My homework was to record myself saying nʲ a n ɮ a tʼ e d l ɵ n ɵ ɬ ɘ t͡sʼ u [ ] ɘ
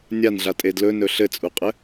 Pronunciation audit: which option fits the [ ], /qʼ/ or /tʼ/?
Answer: qʼ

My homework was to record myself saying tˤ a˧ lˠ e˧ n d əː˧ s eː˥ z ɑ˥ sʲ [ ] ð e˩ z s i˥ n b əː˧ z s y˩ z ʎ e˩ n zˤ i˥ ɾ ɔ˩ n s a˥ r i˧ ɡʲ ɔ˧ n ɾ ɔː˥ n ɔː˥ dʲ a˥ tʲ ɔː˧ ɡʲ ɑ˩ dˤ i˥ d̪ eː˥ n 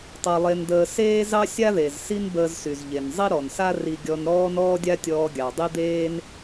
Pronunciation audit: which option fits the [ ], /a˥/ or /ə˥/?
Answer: a˥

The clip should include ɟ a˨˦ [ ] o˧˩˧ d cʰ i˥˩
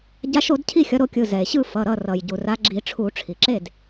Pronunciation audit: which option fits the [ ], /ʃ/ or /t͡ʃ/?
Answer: ʃ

